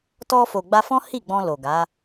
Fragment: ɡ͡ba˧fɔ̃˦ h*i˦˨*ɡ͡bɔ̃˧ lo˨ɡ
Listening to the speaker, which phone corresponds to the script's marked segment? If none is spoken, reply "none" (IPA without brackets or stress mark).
i˦˨